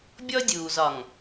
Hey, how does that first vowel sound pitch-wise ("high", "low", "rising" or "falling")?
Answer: high